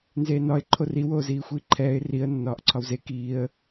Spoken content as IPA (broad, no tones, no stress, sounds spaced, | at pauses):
n z eː n ɒ ɪ̯ ǃʰ o r i w oː z iː xʷ iː ǃʰ ɛː ɪ̯ r i ə̯ nː ɒː ʔ ǀʰ ɒ w z e k iː ə̯